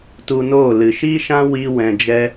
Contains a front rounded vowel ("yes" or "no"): no